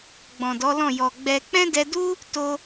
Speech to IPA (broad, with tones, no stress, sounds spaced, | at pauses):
ɡ͡b ɔ̃˨ d ɔ˨˦ l ɔ̃˦˨ j ɔ˨ ɡ͡b ɛ˧ k͡p ɛ̃˦ d ɛ˧ d u˦ | t o˧